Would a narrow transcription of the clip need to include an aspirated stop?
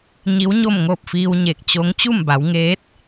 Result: no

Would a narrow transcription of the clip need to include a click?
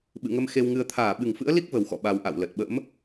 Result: no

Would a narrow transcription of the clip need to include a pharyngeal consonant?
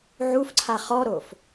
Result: yes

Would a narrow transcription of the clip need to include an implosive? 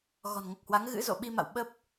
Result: yes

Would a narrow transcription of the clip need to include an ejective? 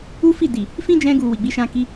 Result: no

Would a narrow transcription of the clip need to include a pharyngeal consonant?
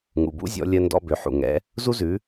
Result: yes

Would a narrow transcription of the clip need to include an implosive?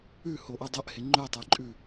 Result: no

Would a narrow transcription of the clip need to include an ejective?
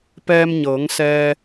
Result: no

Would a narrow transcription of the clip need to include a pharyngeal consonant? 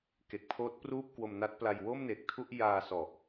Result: no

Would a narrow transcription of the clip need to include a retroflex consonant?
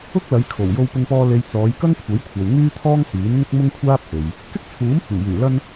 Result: no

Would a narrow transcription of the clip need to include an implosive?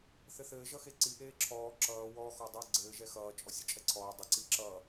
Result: no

